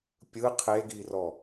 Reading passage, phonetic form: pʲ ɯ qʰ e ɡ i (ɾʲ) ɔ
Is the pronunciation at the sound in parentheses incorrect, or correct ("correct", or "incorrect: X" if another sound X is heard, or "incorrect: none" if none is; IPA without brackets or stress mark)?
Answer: incorrect: r